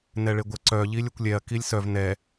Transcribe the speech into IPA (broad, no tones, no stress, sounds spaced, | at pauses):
n ɛ ɭ e ɡʷ ə ǀ œ ʎ i lʲ ɵ kʷ lʲ ɛ ɐ̯ k i lʲ s œ v n ɛ